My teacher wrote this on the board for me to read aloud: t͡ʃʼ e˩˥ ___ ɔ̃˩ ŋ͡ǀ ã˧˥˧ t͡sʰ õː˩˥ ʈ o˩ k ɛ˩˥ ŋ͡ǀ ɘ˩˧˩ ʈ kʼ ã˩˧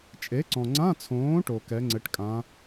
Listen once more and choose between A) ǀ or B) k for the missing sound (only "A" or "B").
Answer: A